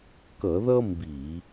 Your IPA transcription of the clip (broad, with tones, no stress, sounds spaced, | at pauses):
k ʌ˧˩˧ ð ʌ˥ m b i˧˩˧